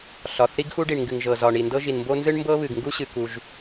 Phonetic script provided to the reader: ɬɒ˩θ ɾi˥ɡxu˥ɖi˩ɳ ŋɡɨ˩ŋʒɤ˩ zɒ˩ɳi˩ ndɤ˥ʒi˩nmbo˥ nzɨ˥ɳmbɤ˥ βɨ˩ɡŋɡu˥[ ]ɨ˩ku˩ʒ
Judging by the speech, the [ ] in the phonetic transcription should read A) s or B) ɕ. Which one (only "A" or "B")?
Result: B